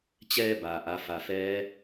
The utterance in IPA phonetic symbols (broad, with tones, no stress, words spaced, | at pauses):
t͡ɕɛː˧ baː˩ʔa˩˧fa˩fɛː˧˥